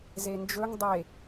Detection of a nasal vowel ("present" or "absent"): absent